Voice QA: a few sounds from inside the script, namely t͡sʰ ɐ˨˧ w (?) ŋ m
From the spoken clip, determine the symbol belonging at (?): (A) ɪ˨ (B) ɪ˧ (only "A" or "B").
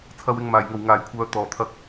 A